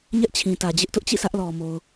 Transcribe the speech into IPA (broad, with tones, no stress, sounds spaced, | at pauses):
ɲ ɛ˦ ʔ t͡ɕʰ ĩ˨ t ä˨ d͡ʑ ɪ˦ ʔ t ʊ˦ ʔ t͡ɕ ḭ˦˨ sʰ ä˦ ʔ l ɔ˨ m o˨ ʊ̯